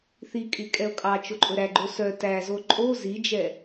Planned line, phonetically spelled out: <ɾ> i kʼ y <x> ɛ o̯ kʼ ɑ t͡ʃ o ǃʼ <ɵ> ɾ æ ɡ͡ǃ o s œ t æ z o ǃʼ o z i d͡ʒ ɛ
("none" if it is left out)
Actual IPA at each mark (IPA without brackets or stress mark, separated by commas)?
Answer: θ, kʼ, ɵ